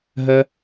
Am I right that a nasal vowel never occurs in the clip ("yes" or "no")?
yes